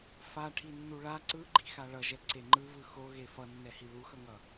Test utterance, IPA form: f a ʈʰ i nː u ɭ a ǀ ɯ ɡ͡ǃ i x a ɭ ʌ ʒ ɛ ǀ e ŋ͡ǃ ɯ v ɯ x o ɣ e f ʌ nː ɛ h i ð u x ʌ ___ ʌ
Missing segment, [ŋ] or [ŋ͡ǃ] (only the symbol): ŋ